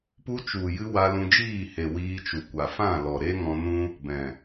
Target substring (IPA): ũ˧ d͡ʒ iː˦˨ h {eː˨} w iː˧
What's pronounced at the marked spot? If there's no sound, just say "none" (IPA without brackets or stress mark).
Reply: e˨